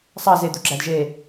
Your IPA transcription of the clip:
sˤ ɑ z e d̪ u ɡ͡ǁ æ d ʒ e

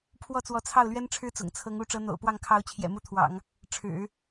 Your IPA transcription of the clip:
pʰ w ɔ˥˩ t͡s w ɔ˧˥ t͡sʰ ɑ˥˩ ʊ̯ l ɥ ɛ˥ n ʈ͡ʂʰ ɻ̩˥ t͡s ʊ̰˨˩ ŋ t͡sʰ ɤ˧˥ ŋ u˧˥ ʈ͡ʂ ɤ˧˥ n̪ o̰˨˩ ʊ̯ p w ɑ˥˩ ŋ kʰ ɑ˧˥ ʊ̯ t͡ɕʰ j ɛ̰˨˩ m u˥ t̪ʰ w ɑ̰˨˩˦ ŋ | ʈ͡ʂʰ ɻ̩˨˩˦

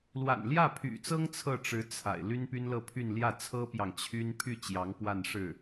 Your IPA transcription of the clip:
l w a̰˨˩ n l j ä˥˩ pʰ y̰˨˩ t͡s ɤ˥ ŋ t͡sʰ ɤ˥˩ ʈ͡ʂ ɻ̩˧˥ t͡sʰ a̰˨˩ ɪ̯ l y˥ n p y˥ n l ɤ˥˧ pʰ y˥˧ n l j ä˥˩ t͡sʰ ɤ˥ p j ɑ˨ ŋ t͡ɕʰ y˥ n pʰ y˥˩ t͡ɕ j ɑ˧˥ ŋ p w a˥˧ n ʂ ɻ̩˥˩

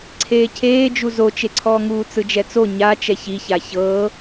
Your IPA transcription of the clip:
ǀʰ eː cʰ eː d͡ʒ u z o t͡ʃ e ǀʰ ɔː ŋ uː t͡s ɯ d͡ʒ ɛ t͡s o ɲ a t͡ʃ ɛ ç i ç a ç ɤ

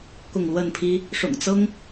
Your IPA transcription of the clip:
k ʊ˥˨ ŋ l w ə˥˨ n pʰ i˦ | ʂ ʊ̰˨˩ ŋ t͡s ɤ˦ ŋ

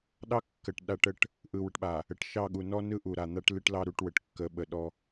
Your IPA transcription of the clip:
ɗ ɑ˦ kː ə˨ ʈ ɗ a˦ ʈ ə˦ ʈ | ʔ ɯ˨ w ə˨ ʈ ɓ a˨ | ə˨ ʈ ʃ ɑ˦˨ ɠ u˨ n ɔ˦ n ɯ˦ ʔ u˨ ɾ a˨ n̪ a˦ ʈ l ɨ˦ ʈ l ɑ˦ ɾ u˦˨ ʈ w ə˨ ʈ kː ə˨˦ ɓ ə˨ ɗ ɔ˦

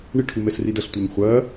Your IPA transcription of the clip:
ɳ ɪ ʈʰ u m ɛ s r i d ɐ ɬ tʷ ɪː m χʷ ɐː

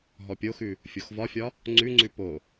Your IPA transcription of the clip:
ɦ ɔ pʲ o x ʉ | fʲ o x v ɒ fʲ ɒ | ŋ͡ǀ ʉ ŋ͡ǀ ʉ p o

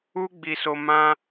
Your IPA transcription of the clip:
u˦ ɡ͡b i˧ s o˧ m ã˧

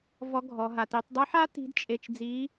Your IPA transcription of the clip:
v ɔ˧˥ ɡʱ ɔ˩˧ ɦ a˩ t i˩˧ tˤ dˤ ɨ˧˥ ħ a˥ t i̤˧˥ d t͡ʃʼ e˧ t͡ʃ d͡z i˧˥

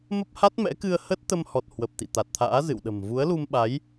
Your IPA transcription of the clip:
m ə˦˥ p̚ h a˦˥ t̚ m ɛ̰˧˥ k ɨ˧ ə̯ h ə˦˥ t̚ t̪ ə˧ m h ɔ˨˩ t̚ h w ə˨˩ p̚ t̪ ḭ˧˨ t̪ a˨˩ t̚ t̪ʰ a̰ː˧˥ z ɨ̰˧˨ w ɗ ə̤˨˩ m v u˨˦ ə̯ l u˧ m ɓ a˨˦ j

